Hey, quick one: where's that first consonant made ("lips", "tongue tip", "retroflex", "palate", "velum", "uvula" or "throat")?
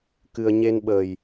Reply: velum